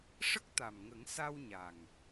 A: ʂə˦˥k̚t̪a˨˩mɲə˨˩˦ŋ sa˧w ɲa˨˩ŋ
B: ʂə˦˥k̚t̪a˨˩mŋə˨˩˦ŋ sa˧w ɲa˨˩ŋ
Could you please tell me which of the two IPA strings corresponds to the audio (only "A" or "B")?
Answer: B